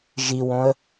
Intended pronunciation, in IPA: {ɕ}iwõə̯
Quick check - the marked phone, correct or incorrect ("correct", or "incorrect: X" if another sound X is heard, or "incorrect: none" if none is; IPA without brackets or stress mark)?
incorrect: ʒ